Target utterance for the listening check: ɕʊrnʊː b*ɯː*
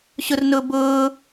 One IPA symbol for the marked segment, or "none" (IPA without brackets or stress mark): ʊː